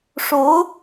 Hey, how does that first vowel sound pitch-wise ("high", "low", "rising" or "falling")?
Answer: rising